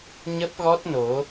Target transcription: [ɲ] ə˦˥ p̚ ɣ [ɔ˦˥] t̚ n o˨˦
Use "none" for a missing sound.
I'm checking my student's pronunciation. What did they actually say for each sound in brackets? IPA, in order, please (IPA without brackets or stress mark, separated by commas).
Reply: ɲ, ɔ˦˥